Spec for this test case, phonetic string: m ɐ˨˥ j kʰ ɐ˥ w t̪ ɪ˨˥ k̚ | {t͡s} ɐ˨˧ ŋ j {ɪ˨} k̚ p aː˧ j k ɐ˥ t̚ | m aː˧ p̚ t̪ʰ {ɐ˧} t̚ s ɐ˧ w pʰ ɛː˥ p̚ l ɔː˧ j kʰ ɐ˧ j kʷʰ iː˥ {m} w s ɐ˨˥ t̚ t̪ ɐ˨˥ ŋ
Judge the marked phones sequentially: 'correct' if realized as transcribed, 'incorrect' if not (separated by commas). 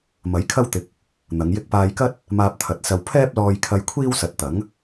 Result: incorrect, incorrect, incorrect, incorrect